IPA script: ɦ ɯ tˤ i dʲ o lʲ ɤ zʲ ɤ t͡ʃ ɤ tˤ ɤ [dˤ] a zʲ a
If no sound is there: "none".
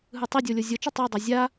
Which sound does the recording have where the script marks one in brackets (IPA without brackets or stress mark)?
dˤ